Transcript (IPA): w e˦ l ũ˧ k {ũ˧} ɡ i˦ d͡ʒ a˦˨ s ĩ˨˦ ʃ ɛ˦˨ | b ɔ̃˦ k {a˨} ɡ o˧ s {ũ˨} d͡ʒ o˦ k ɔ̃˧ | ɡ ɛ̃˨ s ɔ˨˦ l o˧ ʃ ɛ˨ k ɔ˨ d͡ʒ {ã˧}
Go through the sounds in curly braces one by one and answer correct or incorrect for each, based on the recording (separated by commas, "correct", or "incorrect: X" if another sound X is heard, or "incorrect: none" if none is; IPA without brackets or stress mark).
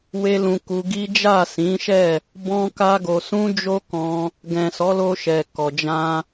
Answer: incorrect: u˧, incorrect: a˦, incorrect: ũ˦, correct